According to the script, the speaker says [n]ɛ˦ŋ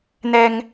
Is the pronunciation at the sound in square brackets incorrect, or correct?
correct